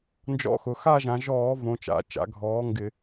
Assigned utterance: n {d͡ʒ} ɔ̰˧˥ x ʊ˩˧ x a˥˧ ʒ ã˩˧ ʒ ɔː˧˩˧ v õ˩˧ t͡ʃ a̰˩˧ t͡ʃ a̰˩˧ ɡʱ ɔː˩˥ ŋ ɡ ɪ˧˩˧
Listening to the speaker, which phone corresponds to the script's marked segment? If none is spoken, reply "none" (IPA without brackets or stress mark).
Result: d͡ʒ